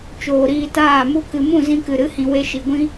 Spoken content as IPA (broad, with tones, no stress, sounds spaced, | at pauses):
t͡ʃ oː˨ ɾ iː˧ t aː˦˨ m u˦ k ɨ˨ m ũ˦˨ z ĩ˧ k ɨ˨ ɾ ɨ˨˦ h ĩ˨ w e˧ ʃ i˨ ɡʷ ĩ˦